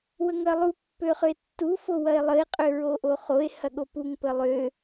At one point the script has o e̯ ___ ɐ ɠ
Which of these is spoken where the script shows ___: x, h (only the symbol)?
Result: h